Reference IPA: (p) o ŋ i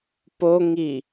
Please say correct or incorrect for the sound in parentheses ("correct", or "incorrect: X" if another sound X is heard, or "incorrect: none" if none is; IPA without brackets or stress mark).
correct